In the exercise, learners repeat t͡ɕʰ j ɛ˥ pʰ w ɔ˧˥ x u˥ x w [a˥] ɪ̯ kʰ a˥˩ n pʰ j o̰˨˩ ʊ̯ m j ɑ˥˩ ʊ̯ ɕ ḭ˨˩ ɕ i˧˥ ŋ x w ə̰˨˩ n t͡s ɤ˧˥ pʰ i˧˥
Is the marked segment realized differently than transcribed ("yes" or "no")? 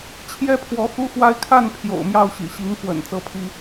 no